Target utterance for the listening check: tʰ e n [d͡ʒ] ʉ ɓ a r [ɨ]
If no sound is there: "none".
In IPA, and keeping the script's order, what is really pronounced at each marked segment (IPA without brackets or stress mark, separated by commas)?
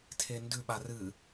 d, ɨ